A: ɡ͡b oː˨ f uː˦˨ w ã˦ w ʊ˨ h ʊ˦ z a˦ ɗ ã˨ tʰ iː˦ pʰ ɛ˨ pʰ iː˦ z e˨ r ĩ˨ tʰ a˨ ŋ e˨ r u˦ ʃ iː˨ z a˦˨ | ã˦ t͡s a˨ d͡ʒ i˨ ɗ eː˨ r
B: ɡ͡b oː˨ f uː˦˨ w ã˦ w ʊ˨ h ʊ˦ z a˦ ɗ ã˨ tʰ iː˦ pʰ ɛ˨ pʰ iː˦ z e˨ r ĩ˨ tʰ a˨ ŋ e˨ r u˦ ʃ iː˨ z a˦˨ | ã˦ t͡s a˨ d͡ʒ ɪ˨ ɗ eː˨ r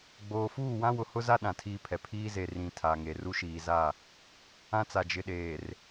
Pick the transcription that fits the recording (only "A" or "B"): B